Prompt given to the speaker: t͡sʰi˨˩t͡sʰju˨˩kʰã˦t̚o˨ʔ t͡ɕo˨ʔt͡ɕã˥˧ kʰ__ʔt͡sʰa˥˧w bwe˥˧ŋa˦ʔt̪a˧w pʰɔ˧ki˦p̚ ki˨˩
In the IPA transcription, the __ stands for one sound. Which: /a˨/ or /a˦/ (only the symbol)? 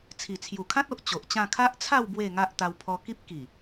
a˦